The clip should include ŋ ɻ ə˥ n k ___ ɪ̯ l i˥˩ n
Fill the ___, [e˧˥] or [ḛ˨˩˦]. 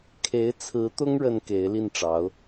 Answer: e˧˥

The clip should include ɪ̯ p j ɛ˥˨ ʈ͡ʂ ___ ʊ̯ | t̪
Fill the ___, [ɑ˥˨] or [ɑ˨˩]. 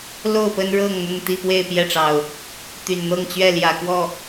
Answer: ɑ˨˩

